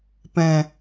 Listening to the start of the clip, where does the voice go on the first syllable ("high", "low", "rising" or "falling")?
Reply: low